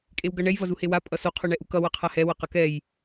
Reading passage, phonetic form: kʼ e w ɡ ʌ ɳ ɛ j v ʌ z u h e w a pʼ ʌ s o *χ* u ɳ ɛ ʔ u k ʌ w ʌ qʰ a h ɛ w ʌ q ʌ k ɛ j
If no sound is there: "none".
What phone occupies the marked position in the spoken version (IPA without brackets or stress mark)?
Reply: qʰ